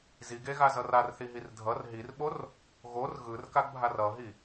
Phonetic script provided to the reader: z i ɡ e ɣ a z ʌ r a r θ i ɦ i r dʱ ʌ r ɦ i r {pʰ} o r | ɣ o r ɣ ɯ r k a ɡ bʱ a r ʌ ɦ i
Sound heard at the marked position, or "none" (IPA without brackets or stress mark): ɓ